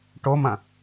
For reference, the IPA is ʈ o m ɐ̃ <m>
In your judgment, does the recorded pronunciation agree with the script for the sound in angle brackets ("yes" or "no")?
no